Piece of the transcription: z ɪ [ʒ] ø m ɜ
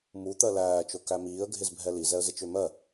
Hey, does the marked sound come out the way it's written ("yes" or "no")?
no